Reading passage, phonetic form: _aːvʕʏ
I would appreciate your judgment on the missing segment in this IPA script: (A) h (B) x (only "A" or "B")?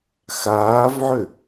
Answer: B